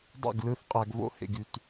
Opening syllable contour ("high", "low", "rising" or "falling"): falling